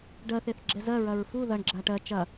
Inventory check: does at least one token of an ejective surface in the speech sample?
no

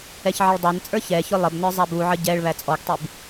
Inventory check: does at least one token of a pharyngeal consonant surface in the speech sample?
yes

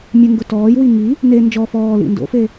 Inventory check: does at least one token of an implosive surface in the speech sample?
no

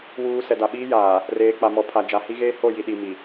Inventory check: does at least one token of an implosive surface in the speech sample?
yes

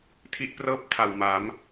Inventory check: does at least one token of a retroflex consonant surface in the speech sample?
no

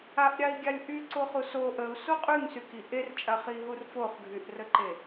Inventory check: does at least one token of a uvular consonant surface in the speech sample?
yes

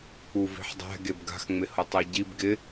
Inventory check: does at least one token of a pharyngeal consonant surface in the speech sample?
yes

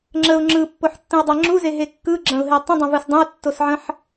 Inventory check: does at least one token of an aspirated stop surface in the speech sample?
no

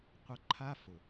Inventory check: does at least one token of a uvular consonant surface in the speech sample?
yes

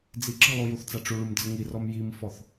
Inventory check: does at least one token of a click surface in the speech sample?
yes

